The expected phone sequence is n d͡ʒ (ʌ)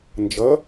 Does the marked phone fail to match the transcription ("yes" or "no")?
no